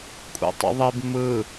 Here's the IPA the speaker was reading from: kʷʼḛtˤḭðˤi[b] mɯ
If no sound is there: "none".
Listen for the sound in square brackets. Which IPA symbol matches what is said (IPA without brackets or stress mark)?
b